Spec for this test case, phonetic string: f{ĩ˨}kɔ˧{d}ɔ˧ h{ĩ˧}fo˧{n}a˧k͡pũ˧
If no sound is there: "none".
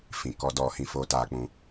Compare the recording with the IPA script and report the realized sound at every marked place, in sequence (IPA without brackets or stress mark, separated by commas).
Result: ĩ˨, d, ĩ˧, t